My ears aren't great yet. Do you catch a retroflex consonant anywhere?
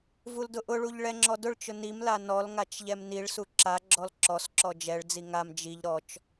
yes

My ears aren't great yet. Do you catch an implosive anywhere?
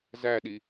yes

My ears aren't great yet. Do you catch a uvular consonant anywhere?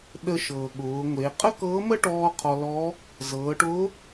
yes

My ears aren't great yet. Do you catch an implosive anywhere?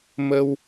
no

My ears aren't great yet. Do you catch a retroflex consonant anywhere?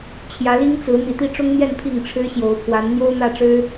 yes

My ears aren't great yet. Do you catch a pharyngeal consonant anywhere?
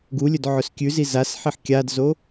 yes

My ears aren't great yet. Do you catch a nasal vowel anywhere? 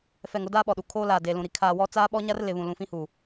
yes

